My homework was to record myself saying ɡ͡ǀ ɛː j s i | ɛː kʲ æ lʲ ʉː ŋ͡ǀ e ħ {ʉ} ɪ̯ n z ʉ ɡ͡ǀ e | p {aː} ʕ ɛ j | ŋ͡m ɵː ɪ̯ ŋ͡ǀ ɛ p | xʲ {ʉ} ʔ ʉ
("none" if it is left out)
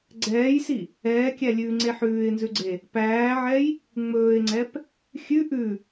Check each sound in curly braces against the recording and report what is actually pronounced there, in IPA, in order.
ʉː, æː, ʉ

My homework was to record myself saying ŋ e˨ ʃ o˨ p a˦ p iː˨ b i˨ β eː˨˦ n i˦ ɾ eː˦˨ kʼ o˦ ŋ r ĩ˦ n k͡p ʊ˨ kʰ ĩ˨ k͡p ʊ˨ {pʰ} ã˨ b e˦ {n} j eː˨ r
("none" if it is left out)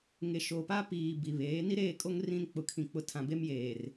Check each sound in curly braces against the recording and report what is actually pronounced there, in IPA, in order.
tʰ, m

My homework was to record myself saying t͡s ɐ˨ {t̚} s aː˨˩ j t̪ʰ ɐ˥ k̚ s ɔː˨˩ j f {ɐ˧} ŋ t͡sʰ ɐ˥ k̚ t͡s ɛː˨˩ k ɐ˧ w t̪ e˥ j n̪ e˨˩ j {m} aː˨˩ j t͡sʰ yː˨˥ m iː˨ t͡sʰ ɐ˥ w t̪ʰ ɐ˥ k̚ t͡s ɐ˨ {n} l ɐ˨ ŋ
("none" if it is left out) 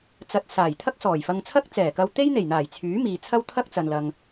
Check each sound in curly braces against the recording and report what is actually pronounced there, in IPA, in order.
t̚, ɐ˧, n̪, n

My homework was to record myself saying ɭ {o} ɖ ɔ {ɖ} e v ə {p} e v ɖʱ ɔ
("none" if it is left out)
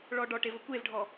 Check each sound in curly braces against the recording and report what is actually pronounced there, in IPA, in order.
ɔ, ʈ, kʷ

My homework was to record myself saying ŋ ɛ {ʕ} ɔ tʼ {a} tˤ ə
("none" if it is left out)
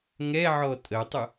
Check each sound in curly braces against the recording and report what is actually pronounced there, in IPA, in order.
ʕ, ə

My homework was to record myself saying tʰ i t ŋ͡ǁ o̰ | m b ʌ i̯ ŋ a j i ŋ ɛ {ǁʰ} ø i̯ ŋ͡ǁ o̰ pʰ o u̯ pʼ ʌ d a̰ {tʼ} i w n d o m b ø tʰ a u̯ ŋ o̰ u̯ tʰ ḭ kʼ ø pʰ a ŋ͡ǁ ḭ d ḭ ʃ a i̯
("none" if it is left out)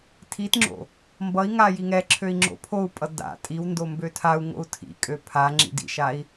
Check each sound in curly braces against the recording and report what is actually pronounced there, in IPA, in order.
ǁʰ, tʼ

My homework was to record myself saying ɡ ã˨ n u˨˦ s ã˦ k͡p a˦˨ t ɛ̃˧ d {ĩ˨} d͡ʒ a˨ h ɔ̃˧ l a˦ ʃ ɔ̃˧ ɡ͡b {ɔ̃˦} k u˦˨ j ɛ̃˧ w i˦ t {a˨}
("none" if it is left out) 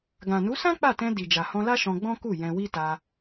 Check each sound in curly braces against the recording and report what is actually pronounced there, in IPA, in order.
i˨, ɔ̃˦, a˧

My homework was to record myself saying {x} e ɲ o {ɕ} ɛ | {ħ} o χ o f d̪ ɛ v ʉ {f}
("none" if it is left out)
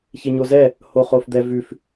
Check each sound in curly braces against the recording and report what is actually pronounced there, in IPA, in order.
ç, z, h, f

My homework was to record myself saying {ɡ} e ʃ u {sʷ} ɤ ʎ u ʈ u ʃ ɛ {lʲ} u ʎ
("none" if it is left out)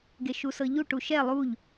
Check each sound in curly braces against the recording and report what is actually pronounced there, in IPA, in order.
ɡ, s, lˠ

